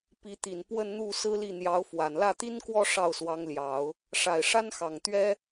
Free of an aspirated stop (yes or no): yes